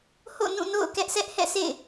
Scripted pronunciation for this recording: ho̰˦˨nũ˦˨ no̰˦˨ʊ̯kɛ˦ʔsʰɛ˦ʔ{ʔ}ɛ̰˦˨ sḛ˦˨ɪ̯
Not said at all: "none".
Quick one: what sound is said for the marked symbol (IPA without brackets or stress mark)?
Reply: h